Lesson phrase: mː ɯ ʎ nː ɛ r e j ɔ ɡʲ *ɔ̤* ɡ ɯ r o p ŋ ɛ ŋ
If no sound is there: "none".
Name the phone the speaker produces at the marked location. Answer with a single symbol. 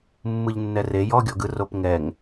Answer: ɔ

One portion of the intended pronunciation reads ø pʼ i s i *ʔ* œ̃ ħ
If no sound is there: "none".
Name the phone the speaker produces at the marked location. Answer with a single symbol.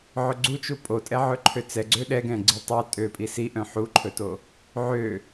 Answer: ʔ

